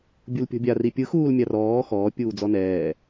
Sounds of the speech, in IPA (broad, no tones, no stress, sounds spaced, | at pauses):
bʲ u l pʲ ɔ̤ bʲ a r i pʲ ɯ x uː l mʲ a r ɔː x ɔː pʲ uː d͡z ɔ n ɛː